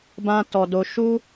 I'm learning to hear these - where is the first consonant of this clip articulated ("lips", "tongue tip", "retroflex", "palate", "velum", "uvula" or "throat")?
lips